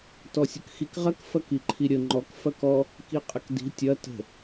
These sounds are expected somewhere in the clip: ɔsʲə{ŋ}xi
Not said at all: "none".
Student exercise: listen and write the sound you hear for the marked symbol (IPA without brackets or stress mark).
k